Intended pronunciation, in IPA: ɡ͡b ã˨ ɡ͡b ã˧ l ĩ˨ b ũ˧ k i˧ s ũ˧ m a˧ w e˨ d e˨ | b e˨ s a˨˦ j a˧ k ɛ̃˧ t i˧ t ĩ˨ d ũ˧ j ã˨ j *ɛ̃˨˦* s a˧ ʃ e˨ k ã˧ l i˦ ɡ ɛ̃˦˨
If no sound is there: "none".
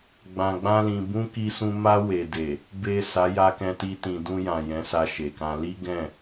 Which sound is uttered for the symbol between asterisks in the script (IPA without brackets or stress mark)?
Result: ɛ̃˨˦